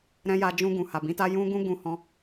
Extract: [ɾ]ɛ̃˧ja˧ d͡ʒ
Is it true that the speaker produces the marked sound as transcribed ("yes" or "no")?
yes